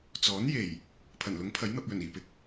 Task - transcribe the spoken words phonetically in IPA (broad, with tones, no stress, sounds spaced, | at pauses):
t͡s ɔː˨˥ n j e˨˩ j | pʰ ɐ˨˩ n l ʊ˨˥ ŋ pʰ ɐ˨˥ j n̪ ɐ˧ p̚ j ɵ˨˩ n iː˨˩ p ɪ˧ k̚